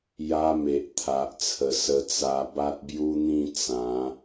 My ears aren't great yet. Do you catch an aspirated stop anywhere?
yes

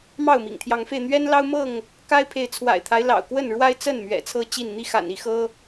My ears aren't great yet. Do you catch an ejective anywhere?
no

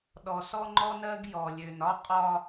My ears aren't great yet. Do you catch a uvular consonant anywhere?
yes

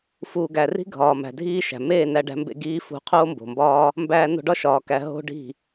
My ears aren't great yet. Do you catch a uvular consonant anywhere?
yes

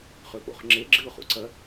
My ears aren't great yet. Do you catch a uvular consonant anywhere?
yes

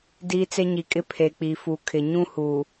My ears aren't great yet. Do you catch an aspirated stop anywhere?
yes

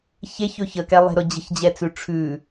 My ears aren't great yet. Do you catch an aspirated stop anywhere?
yes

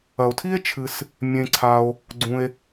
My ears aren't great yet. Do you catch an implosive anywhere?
no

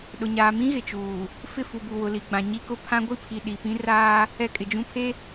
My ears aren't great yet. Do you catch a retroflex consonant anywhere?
no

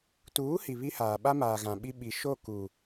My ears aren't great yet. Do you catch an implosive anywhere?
yes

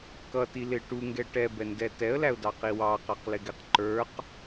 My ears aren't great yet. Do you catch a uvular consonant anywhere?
yes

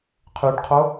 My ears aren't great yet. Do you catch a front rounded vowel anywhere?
yes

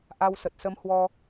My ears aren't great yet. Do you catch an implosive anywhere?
no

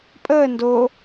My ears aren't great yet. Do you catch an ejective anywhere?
yes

